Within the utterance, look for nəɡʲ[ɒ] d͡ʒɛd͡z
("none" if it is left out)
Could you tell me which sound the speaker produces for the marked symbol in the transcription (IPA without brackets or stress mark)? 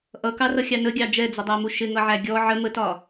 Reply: ɑ